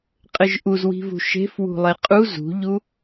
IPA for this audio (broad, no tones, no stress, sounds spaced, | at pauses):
qʼ ɘ ʒ ʔ u z w i̤ v ṳ ʃ e̤ f w ṳ lˠ e qʼ u z ṳ ʎ u